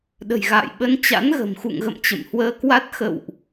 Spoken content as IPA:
ɗ ə̤˨˩ j ɣ a̰ː˧˨ j ɓ ə˨˦ n t͡ɕ a̰˧˥ n ɣ ə̤˨˩ m x ṵ˧˨ ŋ ɣ ə̰˧˨ m t͡ɕ ə̰˧˨ m h w əː˧ k w a˦˥ t̚ x ə̰˧˨ w ʔ

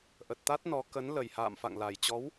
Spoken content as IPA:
ʔ ə˨˩ t̚ t̪ a˦˥ t̚ n ɔ˨˦ k ə˨˦ n l ə˨˩ j h a̰ː˧˨ m f a̰˧˨ ŋ l a˨˩ j t͡ɕ ɔ˨˦ w

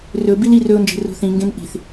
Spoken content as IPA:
r ɵ b i l i r ɵ ʊ̯ n d͡ʒ e̤ r o̤ θ ĩ ŋ ɡ ẽ n ʔ i̤ θ

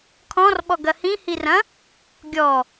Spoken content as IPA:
kʰ ɔ̃ r ɓ ɔ ɡ ɐ h ĩ h i r ɐ̃ | ɡʲ ɔ

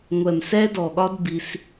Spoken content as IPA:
ŋʷ ɛ˨ m s ɛ˧ d ɔ˨ ɠ ɒ˧ d b i˦ s

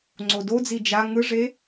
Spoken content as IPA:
ŋ͡ǀ o d o d͡z i d͡ʒ a ŋ ɯ ʐ e

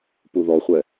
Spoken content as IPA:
p u ð ɔ χʷ ɛ

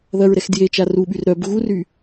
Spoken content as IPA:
ð ɐ ɹ ɾ ɛ x d j e t͡ʃ a r u ɓ y r ɾ œ b ɣ u r y

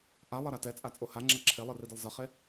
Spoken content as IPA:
ʔ a lˠ ʌ ɾ a t ɛ t͡sʼ a t͡sʼ o h a ŋ͡ǁ a ǁʰ e lˠ ɯ r i d ɛ lˠ z ʌ χ e

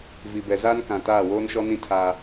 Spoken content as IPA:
v i˨ b ɛ˨ z aː˦ n k ã˨ t aː˦˨ w oː˦ n ʃ ɔ˦ n ĩ˦ tʰ aː˦

